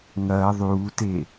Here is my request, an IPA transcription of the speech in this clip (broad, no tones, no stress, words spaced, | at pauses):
ŋɐː ðˤuːte